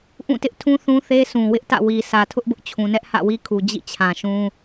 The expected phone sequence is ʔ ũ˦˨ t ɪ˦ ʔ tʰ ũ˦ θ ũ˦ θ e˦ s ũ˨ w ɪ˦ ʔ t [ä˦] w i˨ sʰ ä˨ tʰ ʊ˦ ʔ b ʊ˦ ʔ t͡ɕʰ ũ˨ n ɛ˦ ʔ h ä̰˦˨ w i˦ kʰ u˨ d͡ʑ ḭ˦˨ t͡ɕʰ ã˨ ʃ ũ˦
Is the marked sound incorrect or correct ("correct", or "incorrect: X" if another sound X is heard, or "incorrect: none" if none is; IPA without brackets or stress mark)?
incorrect: ä̰˦˨